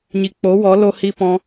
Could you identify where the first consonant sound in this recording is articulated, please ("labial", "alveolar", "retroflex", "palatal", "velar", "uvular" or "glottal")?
palatal